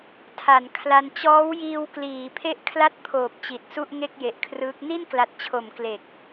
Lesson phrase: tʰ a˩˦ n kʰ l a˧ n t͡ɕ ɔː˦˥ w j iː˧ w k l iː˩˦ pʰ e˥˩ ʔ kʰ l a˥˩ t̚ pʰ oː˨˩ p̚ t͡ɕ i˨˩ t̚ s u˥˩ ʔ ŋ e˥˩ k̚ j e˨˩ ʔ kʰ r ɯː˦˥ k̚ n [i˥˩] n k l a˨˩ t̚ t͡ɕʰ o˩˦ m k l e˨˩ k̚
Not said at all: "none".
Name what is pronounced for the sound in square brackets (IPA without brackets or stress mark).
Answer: i˥˩